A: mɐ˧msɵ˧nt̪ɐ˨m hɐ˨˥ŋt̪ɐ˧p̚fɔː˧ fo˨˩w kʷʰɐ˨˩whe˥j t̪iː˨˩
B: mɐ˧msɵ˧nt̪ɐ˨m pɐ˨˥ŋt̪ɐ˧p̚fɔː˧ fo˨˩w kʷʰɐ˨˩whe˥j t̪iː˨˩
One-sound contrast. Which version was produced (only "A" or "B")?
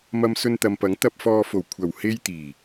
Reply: B